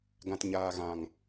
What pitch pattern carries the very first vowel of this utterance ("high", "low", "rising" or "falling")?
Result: low